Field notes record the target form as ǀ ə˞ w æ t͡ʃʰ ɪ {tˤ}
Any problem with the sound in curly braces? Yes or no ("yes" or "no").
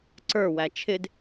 yes